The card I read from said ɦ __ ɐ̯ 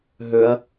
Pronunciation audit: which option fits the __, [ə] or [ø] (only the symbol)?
ø